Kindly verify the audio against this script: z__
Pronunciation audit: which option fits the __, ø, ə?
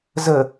ə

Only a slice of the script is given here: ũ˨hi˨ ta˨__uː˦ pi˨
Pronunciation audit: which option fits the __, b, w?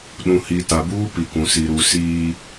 b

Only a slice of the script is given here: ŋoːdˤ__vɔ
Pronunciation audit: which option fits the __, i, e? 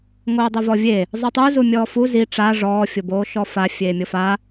e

